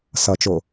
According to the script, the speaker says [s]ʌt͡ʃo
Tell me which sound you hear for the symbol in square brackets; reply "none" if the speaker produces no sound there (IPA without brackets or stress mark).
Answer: s